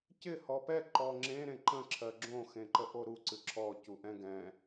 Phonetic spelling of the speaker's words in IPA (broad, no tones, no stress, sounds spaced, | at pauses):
c ɪ h ɔ p ɛ ǃ ɔ ŋ͡ǁ ẽ ɾ ẽ ǃ ə̃ ǁʰ ɜ ɡ͡ǁ õ x ẽ ǃ ə ʔ o ɾ u ǀ ɨ ǁʰ ɔ c u ʔ ɛ̃ ɡ ɛ̃